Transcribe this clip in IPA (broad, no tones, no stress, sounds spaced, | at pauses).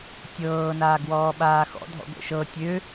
tʲ ɤː n aː ɡ w ɔː ɓ aː x ɔ̰ dʱ ɔ̰ ɡʷ ɛ̰ ʃ ɤ tʲ ø